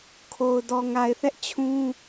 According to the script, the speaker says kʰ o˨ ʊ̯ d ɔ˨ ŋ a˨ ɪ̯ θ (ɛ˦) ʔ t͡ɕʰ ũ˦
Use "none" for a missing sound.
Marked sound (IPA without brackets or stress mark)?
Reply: ɛ˦